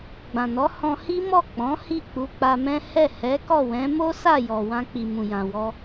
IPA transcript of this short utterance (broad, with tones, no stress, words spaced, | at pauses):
ɡ͡bã˨nɔ˨˦hɔ̃˧hi˦ mɔ˦˨k͡pɔ̃˨˦ hi˦˨k͡pu˧k͡pa˧mɛ̃˦ hɛ˦˨hɛ˨˦kɔ˦˨wɛ̃˨˦ mo˦sa˦˨ jɔ˨ wã˧k͡pi˨mũ˨ jã˨ wɔ˧